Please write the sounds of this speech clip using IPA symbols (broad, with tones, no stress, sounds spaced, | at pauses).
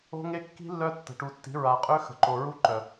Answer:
o̤˦ ŋ e˦ kː i̤˦ lː œ˦ tː ə̤˨ ʈ u˨ tː i̤˨˦ ɹ a˨ qʼ ø˦ x ə̤˨ ǃ o˨ ɹ u˦ ǃ œ˨